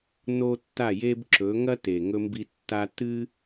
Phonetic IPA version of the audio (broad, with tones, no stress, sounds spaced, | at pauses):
n o˦ tː a˦˨ j e˦ b ǁ ɵ˨˦ ŋ ɐ˦ t e˨ ŋ ɵ˧ m b i˧ tː a˧ t ɨ˦